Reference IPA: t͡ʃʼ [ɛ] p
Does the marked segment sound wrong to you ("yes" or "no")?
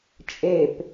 yes